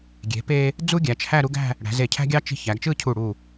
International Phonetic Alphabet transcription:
ɡʲe̤˩˧pe˧ | d͡zu˥ɡʲæ˩˧t͡ʃhæ˥˧ ɾu˥ɡæ̤˥˧ | ɽæ̤˩˧ze˧˩cʰæ̤˥ɡʲɑ˥ t͡ʃi̤˧ çæ˩˧ɡt͡ʃɯ˥˧cʰu˧˩ ɽu˧˩

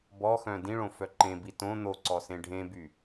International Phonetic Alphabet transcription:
bɔxœ̃ dĩɭõfœ ǃẽbi tõ n̪oǀɔsẽ ɖʱẽby

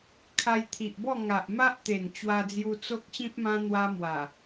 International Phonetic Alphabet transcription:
kʰa˧jt̪ʰi˨ʔbɔ˥˧ ŋa˨ʔma˦ʔ t̪e˨˩n t͡ɕwa˧d͡zju˧ t͡so˦k̚ɕĩ˦p̚mã˦ n̪wa˦mwa˨˩

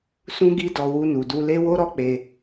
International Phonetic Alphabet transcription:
sũ˧ɡi˧dɔ˨ wu˧nu˨du˧le˦ wo˦ɾɔ˦k͡pe˧

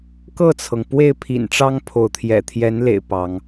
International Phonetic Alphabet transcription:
kɤ˥˨t͡sʰɤ˩ŋ pwe˥˨ɪ̯pʰḭ˨˩nʈ͡ʂɑ˦ŋ pʰo˨˦ʊ̯t̪ʰjɛ̰˨˩ t̪ʰjɛ˨˦nlḛ˨˩ɪ̯ pɑ˨˦ŋ

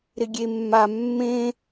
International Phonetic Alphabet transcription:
ɾɪɡʲemːa mːẽ

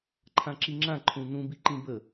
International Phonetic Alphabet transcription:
ǃʰãǁiŋ͡ǁã ǃʰũnũbiǃĩ bə

